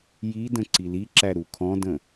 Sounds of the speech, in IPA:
j i d ə̃ ǀ i l i ǁ æ ɾ u kʰ ɔ̃ d ə̃

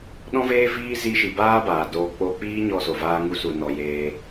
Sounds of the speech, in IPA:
ɗ ɔ̃˦ v eː˦ v iː˦ z i˦ ʃ i˧ b aː˦ b aː˨ d oː˧ k͡p o˦ k͡p iː˦ ɲ ɔ˧ s o˨ v aː˧ ŋ u˧ s u˨ n ɔ˨ j eː˧

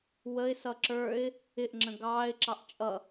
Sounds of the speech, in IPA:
w ə ɪ̯ s ʌ ǁ ə˞ ɪ̯ | ɪ ʔ ŋ͡ǁ ə̃ ɡ ɑː ɪ̯ ǁ ɑ ʔ t͡ʃʼ ʌ

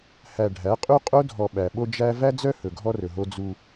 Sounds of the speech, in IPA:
h æ˨ ɖʱ æ˨˦ qʼ u˦ qʼ o˦ dʱ ɔ˨ ɓ æ˨ ɓ o˦ d͡ʒ æ˦ v æ˦ d͡z œ˦ h ɵ˨ ɡʱ ɔ˦ r ɵ˨ ɦ o˦ d͡z u˦

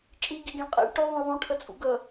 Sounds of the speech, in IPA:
t͡ʃʼ i ɡ i ɡ ĩ ɭ qʼ ɛ̰ ɭ ʈ y ðˤ ũ ɭ ðˤ ũ ʈʰ ə t͡sʼ ṵ ɡ ə

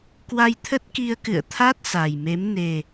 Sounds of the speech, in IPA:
k w a˧ j t̪ʰ ə˦˥ t̚ k i˧ ə̯ k ɨ̰˧˨ ə̯ t̪ʰ a˦˥ t̚ s a˨˩ j m e˨˦ m n e˨˩

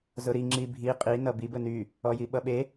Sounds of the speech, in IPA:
z ʊ ɾ i ŋ͡ǁ i bʱ i qʼ i n ʌ b i b ə n y | ɔ j i ɓ ʌ ɓ e

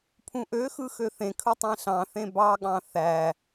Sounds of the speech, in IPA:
pʰ ũ ʔ ø x ɯ x ø θ ẽ kʰ ɯ tˤ ẽ ɬ ɑ̃ θ ẽ b ɑ ɠ ɑ̃ θ æ

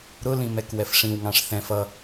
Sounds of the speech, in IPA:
ɾ ʊ l ĩ m ɛ k w ɛ f ʂ ĩ w ŋ ɑ̃ ʂ θ ɛ̃ f ʌ

